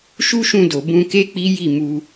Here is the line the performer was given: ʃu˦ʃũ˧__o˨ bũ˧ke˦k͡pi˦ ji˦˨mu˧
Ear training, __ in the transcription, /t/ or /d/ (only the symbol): d